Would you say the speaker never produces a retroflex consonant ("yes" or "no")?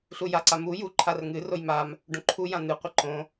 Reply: no